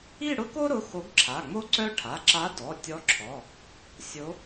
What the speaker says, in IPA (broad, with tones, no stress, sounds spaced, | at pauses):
i˥˧ ɽ ʊ˥ k o˥ ɾ ʊ˩˧˩ x o˧˥ ɡ ǁʰ a˩˧˩ ŋ͡m o˥ ǀ œ˥ ʈʰ a˩˧˩ ǁ a˧˥ d ɔ˩˧˩ tʲ ɔ˧˥ ǁʰ ɔ˩˧˩ | sʲ o˧˥